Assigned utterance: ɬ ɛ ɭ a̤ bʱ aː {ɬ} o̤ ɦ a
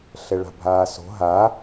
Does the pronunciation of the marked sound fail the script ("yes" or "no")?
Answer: yes